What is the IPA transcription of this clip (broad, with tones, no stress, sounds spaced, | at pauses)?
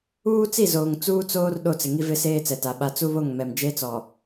uː˦ t͡s i˦˨ z oː˨ ŋ t͡s uː˦ t͡s oː˦ r ɗ o˦˨ t͡s ɪ˨ ŋ i˦ v ɪ˦ s eː˦ t͡s ɛ˨ t a˨ ɓ a˦ t͡s u˦ β o˦˨ ŋ m ɛ˨ m d͡ʒ e˦ t͡s ɔ˨